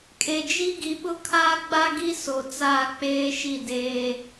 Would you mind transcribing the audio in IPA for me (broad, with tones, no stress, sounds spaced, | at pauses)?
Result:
kʼ e˨ d͡ʒ i˦ ɡ i˨ ɓ ʊ˦ kʰ aː˦ ɡ͡b a˦ ɡ i˦ s o˨ t͡s aː˦˨ k͡p eː˦ ʃ i˦˨ d eː˦